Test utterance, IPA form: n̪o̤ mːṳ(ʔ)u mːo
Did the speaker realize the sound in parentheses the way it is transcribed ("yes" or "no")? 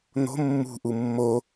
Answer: yes